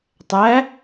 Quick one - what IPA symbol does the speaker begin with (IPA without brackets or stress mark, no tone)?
tˤ